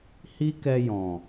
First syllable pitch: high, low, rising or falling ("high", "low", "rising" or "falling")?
high